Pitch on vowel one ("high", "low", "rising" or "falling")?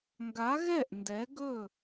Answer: rising